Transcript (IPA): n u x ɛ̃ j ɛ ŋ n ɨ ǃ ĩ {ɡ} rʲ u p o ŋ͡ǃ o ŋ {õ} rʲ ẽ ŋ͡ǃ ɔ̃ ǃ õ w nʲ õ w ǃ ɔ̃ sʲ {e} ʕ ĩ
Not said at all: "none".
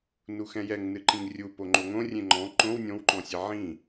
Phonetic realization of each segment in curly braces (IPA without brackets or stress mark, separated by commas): ŋ, õ, e